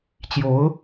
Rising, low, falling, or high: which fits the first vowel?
rising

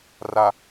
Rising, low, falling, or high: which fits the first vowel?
low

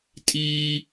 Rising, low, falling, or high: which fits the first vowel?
high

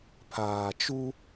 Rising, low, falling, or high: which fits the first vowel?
low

